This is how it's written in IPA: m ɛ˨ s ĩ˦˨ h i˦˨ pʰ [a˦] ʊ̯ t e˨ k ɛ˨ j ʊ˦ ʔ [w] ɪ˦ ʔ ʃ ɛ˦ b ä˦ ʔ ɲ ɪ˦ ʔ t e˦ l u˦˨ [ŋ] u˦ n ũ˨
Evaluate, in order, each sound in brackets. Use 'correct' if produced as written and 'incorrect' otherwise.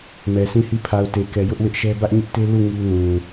incorrect, correct, correct

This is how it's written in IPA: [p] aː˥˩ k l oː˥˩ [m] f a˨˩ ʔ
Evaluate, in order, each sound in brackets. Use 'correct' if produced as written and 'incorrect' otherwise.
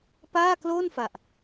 correct, incorrect

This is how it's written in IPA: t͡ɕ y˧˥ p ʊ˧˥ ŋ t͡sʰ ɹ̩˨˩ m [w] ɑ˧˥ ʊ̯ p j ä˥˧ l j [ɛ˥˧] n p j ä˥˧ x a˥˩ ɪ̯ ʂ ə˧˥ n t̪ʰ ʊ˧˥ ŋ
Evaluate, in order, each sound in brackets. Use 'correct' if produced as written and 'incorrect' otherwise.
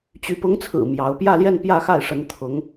incorrect, correct

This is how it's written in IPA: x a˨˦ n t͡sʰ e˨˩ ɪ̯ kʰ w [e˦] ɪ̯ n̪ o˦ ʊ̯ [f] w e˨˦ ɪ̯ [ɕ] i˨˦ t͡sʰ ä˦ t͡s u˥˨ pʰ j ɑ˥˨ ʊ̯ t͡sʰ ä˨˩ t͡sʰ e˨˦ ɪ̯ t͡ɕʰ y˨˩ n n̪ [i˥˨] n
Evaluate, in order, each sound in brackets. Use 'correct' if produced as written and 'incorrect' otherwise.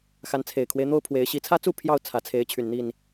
correct, incorrect, correct, correct

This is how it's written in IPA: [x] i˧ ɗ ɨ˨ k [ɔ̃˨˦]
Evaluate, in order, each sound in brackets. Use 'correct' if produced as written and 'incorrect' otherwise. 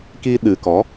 incorrect, incorrect

